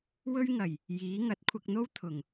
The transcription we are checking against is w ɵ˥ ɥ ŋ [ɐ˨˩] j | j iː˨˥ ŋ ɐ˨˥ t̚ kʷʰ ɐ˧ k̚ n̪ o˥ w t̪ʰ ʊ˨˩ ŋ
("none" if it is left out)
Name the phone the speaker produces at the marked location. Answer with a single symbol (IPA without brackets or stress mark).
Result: ɐ˨˩